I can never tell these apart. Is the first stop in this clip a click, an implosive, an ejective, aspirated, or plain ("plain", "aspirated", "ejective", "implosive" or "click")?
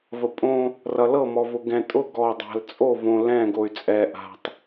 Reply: ejective